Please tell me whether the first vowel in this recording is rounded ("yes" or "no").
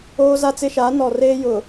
yes